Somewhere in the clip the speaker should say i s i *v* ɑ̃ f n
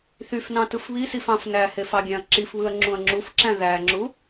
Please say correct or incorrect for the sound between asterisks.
incorrect